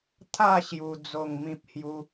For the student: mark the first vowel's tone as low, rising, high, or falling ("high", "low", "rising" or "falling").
falling